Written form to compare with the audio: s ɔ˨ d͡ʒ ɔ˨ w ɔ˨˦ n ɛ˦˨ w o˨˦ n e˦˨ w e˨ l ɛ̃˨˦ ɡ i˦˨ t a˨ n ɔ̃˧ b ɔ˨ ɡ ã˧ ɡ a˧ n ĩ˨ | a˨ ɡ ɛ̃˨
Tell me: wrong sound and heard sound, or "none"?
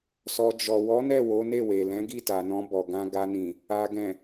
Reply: none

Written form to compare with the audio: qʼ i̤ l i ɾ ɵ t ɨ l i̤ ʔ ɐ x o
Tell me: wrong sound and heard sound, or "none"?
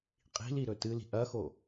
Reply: none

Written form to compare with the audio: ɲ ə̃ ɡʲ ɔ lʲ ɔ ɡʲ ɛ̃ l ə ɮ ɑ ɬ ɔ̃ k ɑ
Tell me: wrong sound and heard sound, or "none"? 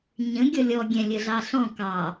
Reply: l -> lʲ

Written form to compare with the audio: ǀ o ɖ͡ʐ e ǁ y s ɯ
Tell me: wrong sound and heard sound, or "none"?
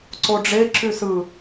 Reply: none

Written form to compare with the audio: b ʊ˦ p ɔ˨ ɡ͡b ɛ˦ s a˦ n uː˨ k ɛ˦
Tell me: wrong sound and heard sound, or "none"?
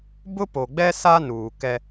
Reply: ɔ˨ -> o˨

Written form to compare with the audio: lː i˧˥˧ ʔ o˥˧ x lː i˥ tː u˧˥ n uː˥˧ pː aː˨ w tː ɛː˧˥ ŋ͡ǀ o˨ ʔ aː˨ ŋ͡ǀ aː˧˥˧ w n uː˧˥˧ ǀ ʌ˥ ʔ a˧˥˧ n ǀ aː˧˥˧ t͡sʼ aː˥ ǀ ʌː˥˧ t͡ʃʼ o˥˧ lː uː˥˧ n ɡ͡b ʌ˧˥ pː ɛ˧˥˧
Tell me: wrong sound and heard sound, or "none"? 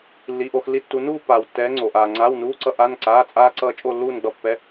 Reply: none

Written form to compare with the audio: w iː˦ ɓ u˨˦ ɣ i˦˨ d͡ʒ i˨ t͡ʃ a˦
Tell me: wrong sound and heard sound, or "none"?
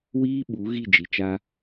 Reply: none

